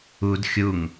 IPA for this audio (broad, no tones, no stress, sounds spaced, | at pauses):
u d xʲ u ŋ